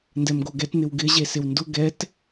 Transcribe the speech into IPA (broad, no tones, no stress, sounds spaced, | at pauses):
n d ɛ m ɡ o ɡ ɛ t n̪ ɪ w ɡ ɪ ʑ e s ɪ w n d ʊ ɡ ɛ t